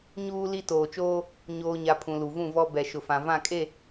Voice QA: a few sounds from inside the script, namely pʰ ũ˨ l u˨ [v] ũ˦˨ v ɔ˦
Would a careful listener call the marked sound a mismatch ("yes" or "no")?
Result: no